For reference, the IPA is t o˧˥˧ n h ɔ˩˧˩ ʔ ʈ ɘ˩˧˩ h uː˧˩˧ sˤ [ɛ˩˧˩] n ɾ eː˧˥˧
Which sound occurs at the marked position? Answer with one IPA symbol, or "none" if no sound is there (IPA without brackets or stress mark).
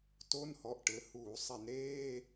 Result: ɛ˧˩˧